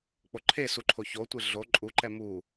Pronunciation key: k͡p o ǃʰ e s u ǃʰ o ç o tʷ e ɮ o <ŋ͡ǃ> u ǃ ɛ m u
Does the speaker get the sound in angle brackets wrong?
yes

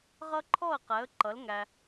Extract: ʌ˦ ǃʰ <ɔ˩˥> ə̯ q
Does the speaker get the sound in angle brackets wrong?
yes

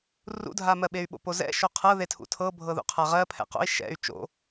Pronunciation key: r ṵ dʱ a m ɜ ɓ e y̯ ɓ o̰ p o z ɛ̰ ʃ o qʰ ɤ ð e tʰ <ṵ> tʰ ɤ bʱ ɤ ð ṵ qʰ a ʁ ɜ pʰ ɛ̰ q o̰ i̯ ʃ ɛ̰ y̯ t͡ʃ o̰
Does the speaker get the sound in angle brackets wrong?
no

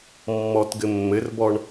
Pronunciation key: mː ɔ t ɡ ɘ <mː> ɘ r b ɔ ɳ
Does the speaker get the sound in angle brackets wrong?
no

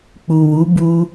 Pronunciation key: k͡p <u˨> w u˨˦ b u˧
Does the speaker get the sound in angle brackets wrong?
no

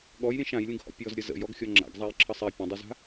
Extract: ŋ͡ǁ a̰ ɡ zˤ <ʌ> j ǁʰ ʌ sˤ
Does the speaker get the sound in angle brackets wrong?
yes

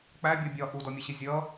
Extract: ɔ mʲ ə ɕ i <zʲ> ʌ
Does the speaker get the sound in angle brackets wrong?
no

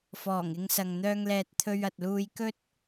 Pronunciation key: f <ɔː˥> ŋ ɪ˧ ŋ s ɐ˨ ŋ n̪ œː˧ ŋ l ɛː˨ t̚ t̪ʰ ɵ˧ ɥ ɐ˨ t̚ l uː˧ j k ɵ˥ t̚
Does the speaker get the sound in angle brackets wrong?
yes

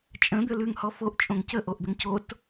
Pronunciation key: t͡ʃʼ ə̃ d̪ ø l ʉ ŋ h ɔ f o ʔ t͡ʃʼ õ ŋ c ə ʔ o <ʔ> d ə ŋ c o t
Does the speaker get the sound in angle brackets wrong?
no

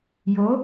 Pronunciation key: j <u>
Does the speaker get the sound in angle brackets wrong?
yes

